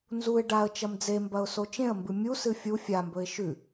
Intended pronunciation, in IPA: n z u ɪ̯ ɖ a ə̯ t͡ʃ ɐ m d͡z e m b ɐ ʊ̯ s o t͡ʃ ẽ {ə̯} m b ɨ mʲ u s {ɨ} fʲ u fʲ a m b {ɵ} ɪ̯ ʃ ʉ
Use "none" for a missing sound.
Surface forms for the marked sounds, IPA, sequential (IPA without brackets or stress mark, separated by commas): ə̯, ɨ, ɵ